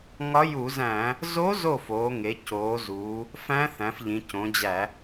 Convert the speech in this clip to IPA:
ŋɒ˧˥ju˧˩˧zæ̃˧˩˧ | zo˧˥ zo˥˩foː˩˧ŋe˩˧ coː˩˧zuː˩˧ | fæ̃˧˥ θæ̃˩˧fʎĩ˩˧cõ˩˧d͡ʑæ˧˩˧

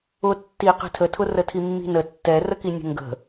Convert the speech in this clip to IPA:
ʊ tːi qɛ̤tʰətʰʊ rətʰimːi̤nə tːɛrəki nʲə̤ŋɡə̤

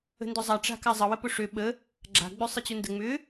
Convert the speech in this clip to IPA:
ə̤ndʊzˤa ʈ͡ʂa̤kazˤə wəpʊʂø ɓə | ɡ͡ǁa̤ ɡ͡bøsˤət͡ɕʊndə ŋ͡mʏ

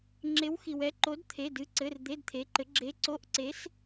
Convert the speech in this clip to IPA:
ŋ͡ǁe˧˥wxi˨w ɛ˧˥ǃo˧˥d t̪ʰe˧˥˧dɨ˧˥˧ǀɘ˧˥˧r d̪e˧˥˧dt̪ʰe˧˥ǃɘ˧˥ ɡ͡ǁe˧˥ǀo˧˥˧ʔǀe˧˥s

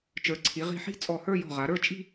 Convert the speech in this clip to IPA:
t͡ʃə˞˩˧ǀʰi˩˧ʁi̤˧˩ ħi̤˥˧ t͡sʼɔ˧˩hə˞˥˧jɔ̤˧˩ ʁa˩˧ɾə˞˥˧t͡ʃʼi̤˥˧

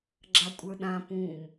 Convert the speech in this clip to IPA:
ɡ͡ǁakʷʼə˞ɗã pũm

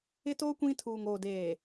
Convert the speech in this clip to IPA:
ɪ˦toː˦ kʷĩ˦ tʰuː˨ŋoː˨deː˨

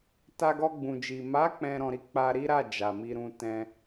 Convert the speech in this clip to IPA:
ta˧ɡɔ˧ ɡ͡bũ˨d͡ʒi˨ ma˨˦ k͡pɛ̃˧ ɾɔ̃˧ɾi˦ k͡pa˧ɾi˦ɾa˦˨ d͡ʒa˨mi˧ɾũ˧ tɛ̃˧

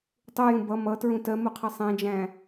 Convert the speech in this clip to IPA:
tˤujũ bʌ mʌtɹũ tɜmuqʰʌ sˤɛ̃d͡ʒæ̃

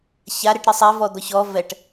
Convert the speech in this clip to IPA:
çaɾeʈ ɾɨsˤɛ vɔd̪ɔçɔ vɛʈ

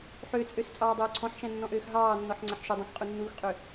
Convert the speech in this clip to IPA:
ħøt͡sʼøs t͡sʼɑːdˤøːǀʰɔ̃ħʃæ̃ nːɔ̃ʔøːxɦɑːnːɔħ ŋ͡ǀæħʃɵdˤɑ̃x qʼunːuːxqʼø

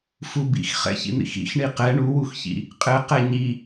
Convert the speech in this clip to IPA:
fubḭx χɛ̰çḭn̪ḭxḭx ɳiqɛ ɳuwuxçḭ | qʼɘ qɛɲi

